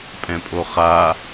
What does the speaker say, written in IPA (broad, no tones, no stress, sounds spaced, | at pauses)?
pʼ ɛ̃ pʼ o χ a